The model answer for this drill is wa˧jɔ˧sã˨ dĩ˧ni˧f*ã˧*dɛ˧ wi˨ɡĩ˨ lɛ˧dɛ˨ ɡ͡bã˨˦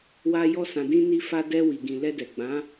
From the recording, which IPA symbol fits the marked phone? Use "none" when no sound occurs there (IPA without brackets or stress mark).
a˧